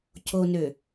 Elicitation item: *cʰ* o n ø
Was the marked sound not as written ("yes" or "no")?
no